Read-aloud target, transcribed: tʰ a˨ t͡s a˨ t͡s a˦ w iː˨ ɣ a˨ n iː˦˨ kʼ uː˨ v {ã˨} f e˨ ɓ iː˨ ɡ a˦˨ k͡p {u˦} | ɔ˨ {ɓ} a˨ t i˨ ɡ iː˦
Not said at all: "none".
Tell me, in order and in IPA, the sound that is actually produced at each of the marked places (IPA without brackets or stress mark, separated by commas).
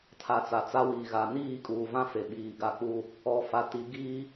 ã˦, u˦, f